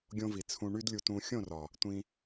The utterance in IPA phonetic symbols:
ɡʲ õ˧ v i˨ t͡sʰ ũ˧ ɳ y˦ d lʲ u˧ t ũ˧ xʲ õ˦˨ r ɒ˨ | tʷ ĩ˧

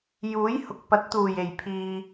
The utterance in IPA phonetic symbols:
j uː˨˥ j h ʊ˨ k̚ p ɐ˨˥ t̚ t̪ uː˨˩ j e˨˩ j pʰ iː˨

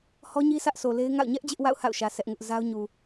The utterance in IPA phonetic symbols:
h ɔ˦ ɲ i˦ sʰ ä˦ ʔ sʰ o˨ l e˦ ɪ̯ ŋ a̰˦˨ ʊ̯ ɲ ɛ˦ ʔ d͡ʑ ɪ˦ ʔ w a̰˦˨ ʊ̯ h a̰˦˨ ʊ̯ ʃ ä˨ sʰ ɛ˦ ʔ ŋ ʊ˦ ʔ z a˦ ʊ̯ ɲ u˨

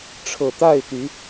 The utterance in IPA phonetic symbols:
ʈ͡ʂʰ ɤ˨˩ t̪ a˥˨ ɪ̯ t̪ y˨˦

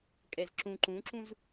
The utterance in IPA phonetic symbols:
kʼ ɛ z ǁ ũ ǃ ũ ǁ ũ z

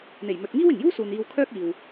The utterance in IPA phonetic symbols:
n̪ e˨˩ j m ɵ˨ t̚ ŋ iː˥ w ɪ˨˩ ŋ j uː˥ s uː˨ n iː˧ w kʰ œː˥ k̚ iː˨ w

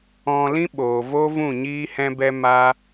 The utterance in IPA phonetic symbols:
ɔ̃˧ l ĩ˦ ɓ oː˨ v o˦ v ũ˦˨ ɲ iː˦ h ɛ̃˦ b ɛ˦ m aː˦

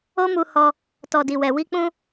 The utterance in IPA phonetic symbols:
o˦ m u˧ h ɔ˧ | t ɔ˨ d i˨ w ɛ˨ w i˧ k͡p ũ˧

